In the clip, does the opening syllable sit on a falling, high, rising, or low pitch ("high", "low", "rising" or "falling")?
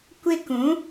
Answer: high